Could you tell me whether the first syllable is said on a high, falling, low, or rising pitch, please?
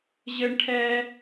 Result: high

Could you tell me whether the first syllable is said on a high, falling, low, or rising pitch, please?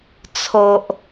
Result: low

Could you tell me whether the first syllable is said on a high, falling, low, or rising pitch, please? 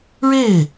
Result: falling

